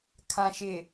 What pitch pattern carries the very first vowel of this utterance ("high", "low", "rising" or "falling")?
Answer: low